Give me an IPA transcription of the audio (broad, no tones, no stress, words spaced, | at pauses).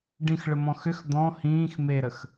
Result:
ɖĩxɭəmɔ̃ xʏx d̪ɔ̃ hĩːx meɾəx